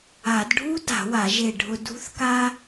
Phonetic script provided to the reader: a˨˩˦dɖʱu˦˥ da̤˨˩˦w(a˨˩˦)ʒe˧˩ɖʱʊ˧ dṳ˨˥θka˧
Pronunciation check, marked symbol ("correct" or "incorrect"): correct